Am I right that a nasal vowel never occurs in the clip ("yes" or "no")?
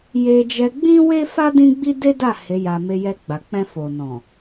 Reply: no